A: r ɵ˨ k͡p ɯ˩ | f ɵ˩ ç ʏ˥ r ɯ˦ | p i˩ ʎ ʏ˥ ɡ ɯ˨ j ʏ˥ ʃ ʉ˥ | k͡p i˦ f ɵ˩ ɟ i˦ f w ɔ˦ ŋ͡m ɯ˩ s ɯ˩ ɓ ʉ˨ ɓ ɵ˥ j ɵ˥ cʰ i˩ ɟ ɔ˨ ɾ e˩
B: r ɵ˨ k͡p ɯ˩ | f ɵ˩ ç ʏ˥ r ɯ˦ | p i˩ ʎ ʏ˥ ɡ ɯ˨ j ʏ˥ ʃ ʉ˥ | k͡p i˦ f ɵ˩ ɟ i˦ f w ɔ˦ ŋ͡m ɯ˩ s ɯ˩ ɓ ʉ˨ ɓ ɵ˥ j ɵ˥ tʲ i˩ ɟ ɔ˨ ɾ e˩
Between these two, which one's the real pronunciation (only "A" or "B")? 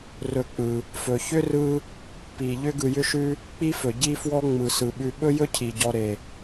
A